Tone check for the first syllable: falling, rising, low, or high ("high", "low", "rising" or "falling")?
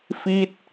falling